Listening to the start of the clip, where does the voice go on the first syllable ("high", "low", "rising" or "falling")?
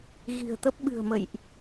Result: low